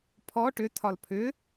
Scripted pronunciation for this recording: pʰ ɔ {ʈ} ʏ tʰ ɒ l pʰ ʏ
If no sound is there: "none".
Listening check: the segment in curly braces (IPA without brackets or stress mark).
ʈ